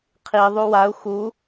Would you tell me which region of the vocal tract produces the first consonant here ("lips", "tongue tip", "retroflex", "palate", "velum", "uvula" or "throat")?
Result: uvula